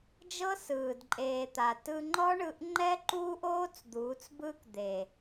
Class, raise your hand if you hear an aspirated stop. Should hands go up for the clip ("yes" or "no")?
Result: no